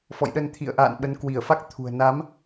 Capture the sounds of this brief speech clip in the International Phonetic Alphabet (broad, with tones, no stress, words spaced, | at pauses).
fɔ̰˧˨jɗə˧nt̪ʰḭ˧˨ə̯ʔa̰ː˧˨n ɓə˨˦nkwi˧˩ə̯fa˦˥k̚ t̪ʰṳ˨˩ə̯ na˨˦m